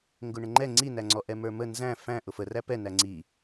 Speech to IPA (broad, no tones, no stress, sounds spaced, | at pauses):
ŋ ɡ ʊ ɳ ə̃ ŋ͡ǃ ɛ ŋ͡ǀ i n æ ŋ͡ǀ ɔ ʔ ɛ m ə˞ m ə n z æ̃ f æ̃ ʔ ʊ f ə r æ p ɛ n æ ŋ͡ǀ i